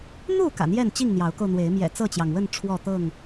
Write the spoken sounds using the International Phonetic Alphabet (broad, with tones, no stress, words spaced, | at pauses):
n̪u˥˨ kä̰˨˩n̪jɛ˥˨nt͡ɕi˥˨ŋ n̪jɑ˨˦ʊ̯ko˧ʊ̯n̪we˨˦ɪ̯ mjɛ̰˨˩t͡sɤ˥˨t͡ɕjɑ˩ŋwə˥˨n ʈ͡ʂʰwɔ˥˨t̪ɤ˥˨ŋ